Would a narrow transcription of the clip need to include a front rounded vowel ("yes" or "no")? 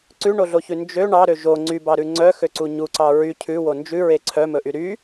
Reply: yes